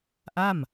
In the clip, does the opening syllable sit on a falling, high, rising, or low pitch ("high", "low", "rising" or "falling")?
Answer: falling